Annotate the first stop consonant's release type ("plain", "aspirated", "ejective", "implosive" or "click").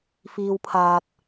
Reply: aspirated